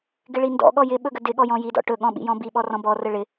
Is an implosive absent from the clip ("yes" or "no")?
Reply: no